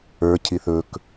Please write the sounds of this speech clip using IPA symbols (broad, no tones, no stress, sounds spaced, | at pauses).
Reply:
ə˞ cʰ i θ ɵ k